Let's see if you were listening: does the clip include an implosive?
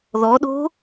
yes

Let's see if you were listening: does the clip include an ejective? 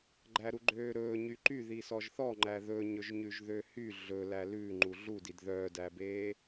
no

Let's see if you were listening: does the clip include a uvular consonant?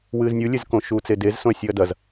no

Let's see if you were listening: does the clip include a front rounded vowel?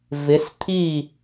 no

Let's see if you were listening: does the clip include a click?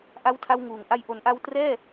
no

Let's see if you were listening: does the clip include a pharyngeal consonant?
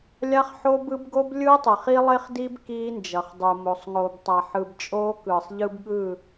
yes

